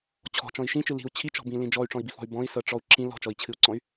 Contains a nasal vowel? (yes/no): yes